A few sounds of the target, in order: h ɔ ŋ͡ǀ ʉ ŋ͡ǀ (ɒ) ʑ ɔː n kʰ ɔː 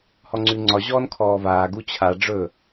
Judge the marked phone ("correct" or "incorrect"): correct